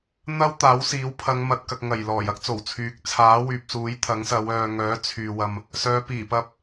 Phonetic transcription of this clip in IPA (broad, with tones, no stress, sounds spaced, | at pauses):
n̪ ɐ˥ w t̪ aː˨˥ w s iː˨˥ w pʰ ɐ˨˧ ŋ m ɐ˨ t̚ k ɐ˨ k̚ ŋ ɐ˨˩ j l ɔː˨˩ j ɐ˥ k̚ t͡s o˨˩ w t͡sʰ yː˨˥ k̚ t͡sʰ aː˨˥ w yː˨ p̚ s uː˨˥ j t̪ʰ ɐ˨˥ ŋ s ɐ˨˧ w œː˨ ŋ œː˨˥ t͡sʰ yː˨ w ɐ˧ m | s œː˨˧ p iː˨˩ p ɐ˧ p̚